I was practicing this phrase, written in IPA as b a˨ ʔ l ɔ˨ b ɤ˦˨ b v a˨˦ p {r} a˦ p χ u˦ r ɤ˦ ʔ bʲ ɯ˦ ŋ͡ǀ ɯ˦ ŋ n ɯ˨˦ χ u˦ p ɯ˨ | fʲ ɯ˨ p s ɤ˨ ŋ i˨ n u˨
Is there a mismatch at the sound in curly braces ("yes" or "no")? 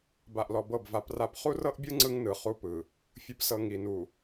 no